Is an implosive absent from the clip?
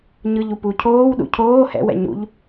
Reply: no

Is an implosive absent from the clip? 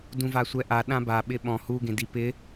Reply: no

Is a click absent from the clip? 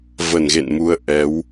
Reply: yes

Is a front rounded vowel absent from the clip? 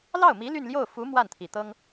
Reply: no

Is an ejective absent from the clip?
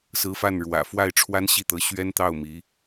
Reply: yes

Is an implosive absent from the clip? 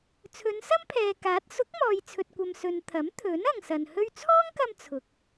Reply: yes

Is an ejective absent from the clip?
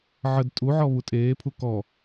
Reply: no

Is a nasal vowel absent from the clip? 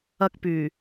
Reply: yes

